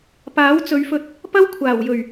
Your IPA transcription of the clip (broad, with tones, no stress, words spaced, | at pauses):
paː˨˥wt͡sɵ˨˧ɥfɵ˧t̚ | pɐ˥wkʷʰaː˨˩wjɵ˨˩ɥ